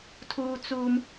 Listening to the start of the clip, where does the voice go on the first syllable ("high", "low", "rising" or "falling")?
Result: high